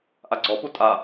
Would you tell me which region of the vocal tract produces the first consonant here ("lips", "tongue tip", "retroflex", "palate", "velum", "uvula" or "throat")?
throat